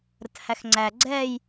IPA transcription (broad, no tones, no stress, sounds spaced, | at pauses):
ɾ ə t h æ x ŋ͡ǀ æ ɡ͡ǀ ɛ j